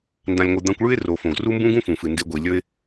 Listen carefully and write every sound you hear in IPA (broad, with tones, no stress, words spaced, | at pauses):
ndã˨lʲŋʷɨ˨ d̪ã˧kʷɭʉ˦ɪ̯ ro˨fõ˨ɡ ru˦mbũ˦ɡũ˦ fũ˨fɨ˨nde˧ ɡʷi˨ lʲɵ˦ɪ̯